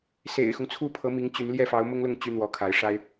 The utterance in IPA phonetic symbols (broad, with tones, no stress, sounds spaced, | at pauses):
s ḛ˨˩ ɪ̯ x ʊ˦ ŋ t͡sʰ u˥ pʰ ɤ˧˥ m i˧˥ ŋ t͡ɕ y˧˥ n l j ɛ˥˩ f ɑ˧˥ ʊ̯ m ʊ˥ ŋ l ʊ˥˩ ŋ t͡ɕ y˥ n̪ w ɔ˧˥ kʰ a˧˥ ɪ̯ ʂ a˥ ɪ̯